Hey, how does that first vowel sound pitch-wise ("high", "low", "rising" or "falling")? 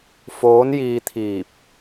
rising